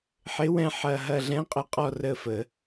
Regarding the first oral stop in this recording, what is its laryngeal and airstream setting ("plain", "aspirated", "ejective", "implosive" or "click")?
ejective